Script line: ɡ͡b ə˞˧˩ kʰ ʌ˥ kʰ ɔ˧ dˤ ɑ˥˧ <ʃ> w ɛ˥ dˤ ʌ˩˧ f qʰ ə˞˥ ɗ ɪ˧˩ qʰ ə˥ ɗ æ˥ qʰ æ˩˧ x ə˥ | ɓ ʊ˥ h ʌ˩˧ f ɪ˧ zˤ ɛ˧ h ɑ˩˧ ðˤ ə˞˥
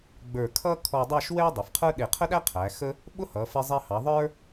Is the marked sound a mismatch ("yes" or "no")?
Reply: no